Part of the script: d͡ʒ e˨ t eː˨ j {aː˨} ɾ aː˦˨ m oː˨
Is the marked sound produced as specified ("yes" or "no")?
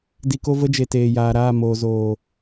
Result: yes